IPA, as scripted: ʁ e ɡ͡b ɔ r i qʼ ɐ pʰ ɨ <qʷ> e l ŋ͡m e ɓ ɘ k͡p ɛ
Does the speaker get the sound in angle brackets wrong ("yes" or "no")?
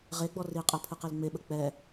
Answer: yes